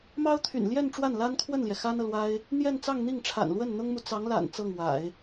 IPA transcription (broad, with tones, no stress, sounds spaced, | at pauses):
m ɑ˥ ʊ̯ t̪ʰ y̰˨˩ n l j ɛ˥˧ n ʈ͡ʂ w a˥˩ n l a˥ n kʰ w ə˥˩ n l j ɛ˩ x a˥ n ɤ˨ l w a˥ ɪ̯ | n̪ j ɛ˥˧ n t͡s ɑ˥˧ ŋ n̪ i˥˩ ŋ ʈ͡ʂʰ a̰˨˩ n l w ə˥˩ n n̪ ʊ˥ ŋ m u˨ t͡s ɑ˧˥ ŋ l a̰˨˩ n t͡s ɤ˥˩ ŋ w a̰˨˩˦ ɪ̯